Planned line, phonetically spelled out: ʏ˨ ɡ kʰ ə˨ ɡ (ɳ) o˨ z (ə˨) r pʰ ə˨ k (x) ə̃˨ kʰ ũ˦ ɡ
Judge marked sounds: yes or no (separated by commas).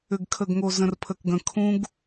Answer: no, no, no